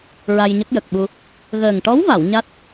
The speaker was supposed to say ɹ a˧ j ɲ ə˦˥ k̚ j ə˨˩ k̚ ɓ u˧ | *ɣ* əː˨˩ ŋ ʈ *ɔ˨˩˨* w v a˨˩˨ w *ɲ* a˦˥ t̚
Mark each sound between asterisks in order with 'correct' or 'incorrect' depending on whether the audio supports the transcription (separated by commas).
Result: correct, incorrect, correct